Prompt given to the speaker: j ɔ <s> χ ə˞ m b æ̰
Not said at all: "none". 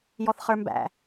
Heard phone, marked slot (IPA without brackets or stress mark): θ